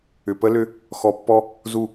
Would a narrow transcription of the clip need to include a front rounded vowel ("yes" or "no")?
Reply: yes